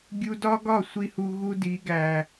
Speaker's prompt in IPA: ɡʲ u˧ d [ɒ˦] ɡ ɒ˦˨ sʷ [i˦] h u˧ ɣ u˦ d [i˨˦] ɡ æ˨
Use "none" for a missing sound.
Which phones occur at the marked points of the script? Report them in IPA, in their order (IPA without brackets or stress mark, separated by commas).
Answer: ɒ˦, i˦, i˨˦